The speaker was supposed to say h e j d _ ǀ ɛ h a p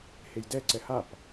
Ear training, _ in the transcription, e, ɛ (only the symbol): ɛ